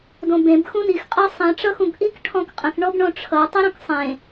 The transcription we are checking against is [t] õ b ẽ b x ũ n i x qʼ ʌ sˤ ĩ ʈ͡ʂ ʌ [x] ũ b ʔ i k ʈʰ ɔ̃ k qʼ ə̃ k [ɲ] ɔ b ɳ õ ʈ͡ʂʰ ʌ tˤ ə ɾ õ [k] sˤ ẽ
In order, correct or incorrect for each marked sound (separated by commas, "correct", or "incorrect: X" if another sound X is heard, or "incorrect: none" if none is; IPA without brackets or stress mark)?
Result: incorrect: d, correct, incorrect: ɳ, correct